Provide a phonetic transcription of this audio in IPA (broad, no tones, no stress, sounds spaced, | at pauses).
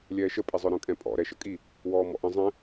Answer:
lʲ ɛː ʃ ə pʼ i zˤ œ ɾ œ̃ kʼ ɛ̃ pʼ ɔ̰ ɾ ɛ ʃ ə kʼ i | w ɔː m ɔ̰ ʔ ə̃ zˤ ɛ̃